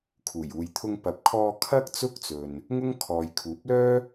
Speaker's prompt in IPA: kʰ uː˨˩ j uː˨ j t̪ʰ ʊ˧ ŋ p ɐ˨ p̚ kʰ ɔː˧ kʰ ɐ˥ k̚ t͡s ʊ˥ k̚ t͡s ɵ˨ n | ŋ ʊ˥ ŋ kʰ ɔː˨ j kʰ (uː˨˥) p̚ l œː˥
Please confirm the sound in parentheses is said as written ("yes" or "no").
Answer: yes